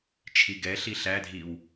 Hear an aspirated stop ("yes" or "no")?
yes